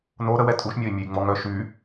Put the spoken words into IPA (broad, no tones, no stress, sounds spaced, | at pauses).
n o ɾ ə w ɛ tʼ u ʃ mʲ ɔ i̯ mʲ ø j ŋ͡m ɔ ŋ œ ʃ y